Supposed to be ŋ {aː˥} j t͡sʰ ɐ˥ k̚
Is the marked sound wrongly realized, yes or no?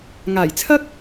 yes